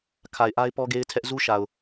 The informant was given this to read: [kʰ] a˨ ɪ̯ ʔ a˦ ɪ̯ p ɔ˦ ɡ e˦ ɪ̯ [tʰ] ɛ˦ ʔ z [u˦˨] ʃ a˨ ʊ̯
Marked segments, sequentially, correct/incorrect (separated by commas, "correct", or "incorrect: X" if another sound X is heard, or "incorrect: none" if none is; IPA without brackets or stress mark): correct, correct, incorrect: u˦